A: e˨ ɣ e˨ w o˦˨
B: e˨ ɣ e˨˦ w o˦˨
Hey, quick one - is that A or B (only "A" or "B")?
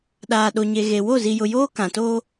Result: A